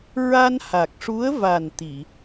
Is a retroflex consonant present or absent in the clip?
present